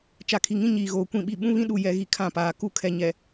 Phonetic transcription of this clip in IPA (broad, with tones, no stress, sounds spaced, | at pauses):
t͡ʃ a˨ kʰ i˨ ŋ ĩ˦ ɲ iː˨ ɣ oː˨ kʷ ĩ˦˨ ɓ i˦˨ ɓ ũ˦ β ĩ˦ ɗ u˨ j ɛ˨ ɣ i˨ kʰ ã˦˨ p aː˨ k u˦ kʰ ɛ˨ ɲ ɛ˨